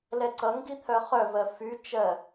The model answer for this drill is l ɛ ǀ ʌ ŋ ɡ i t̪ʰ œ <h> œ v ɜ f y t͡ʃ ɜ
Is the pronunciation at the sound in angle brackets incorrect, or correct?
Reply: incorrect